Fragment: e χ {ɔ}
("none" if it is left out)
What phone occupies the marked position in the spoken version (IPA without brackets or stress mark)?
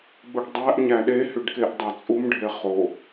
o